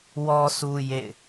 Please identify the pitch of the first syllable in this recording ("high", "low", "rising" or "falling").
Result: low